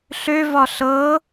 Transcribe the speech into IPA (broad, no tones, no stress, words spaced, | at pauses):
ɬøvɒ ɬɤ